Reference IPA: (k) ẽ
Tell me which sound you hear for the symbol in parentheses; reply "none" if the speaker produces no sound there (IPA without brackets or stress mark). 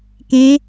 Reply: k